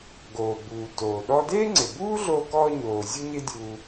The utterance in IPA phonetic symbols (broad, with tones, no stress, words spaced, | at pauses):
ɡoː˩buː˩ toː˩ ɗɔ˧deː˥ŋ͡ǀɪ˩buː˥ ɮo˧kɔ˧ɲoː˩ zʲu˥ɲɪ˥dʲu˧